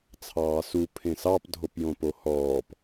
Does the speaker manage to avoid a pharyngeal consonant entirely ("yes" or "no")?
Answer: yes